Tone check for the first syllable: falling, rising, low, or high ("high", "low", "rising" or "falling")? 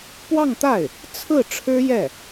falling